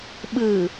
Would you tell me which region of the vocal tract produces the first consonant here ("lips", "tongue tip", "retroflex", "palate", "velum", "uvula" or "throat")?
lips